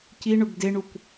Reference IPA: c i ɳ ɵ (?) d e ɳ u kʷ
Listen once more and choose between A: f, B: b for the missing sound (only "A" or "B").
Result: B